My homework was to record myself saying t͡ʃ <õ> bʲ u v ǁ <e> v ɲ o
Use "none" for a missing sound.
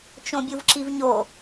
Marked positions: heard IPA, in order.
õ, i

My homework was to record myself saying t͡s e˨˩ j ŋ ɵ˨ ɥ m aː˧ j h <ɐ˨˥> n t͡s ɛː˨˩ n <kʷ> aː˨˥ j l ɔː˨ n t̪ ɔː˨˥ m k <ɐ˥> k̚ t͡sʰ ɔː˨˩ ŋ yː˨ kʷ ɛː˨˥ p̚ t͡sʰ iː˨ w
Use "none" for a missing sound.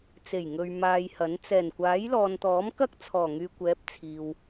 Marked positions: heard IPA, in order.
ɐ˨˥, kʷ, ɐ˥

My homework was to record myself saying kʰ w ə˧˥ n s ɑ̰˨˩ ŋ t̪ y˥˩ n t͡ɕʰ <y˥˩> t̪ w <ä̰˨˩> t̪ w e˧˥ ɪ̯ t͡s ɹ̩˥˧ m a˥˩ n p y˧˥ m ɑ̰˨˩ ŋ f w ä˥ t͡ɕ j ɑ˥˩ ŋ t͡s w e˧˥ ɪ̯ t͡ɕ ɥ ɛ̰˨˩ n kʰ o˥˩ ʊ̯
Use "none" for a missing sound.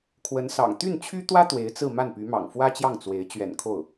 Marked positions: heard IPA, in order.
y˥, ä˥

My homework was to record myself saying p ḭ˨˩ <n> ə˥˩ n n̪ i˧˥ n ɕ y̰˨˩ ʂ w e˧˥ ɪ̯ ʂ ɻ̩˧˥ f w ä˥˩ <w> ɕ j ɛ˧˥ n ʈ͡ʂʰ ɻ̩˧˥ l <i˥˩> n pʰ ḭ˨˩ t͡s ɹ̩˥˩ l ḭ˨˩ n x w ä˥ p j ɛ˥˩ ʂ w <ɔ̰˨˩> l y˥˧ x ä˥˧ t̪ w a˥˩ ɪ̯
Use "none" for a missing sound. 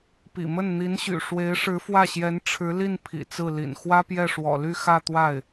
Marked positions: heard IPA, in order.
m, none, i˥˩, ɔ̰˨˩

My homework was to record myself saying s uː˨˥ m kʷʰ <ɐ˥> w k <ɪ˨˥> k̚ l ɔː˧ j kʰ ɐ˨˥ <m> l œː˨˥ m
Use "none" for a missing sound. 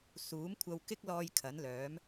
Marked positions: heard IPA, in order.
ɐ˧, ɪ˥, n

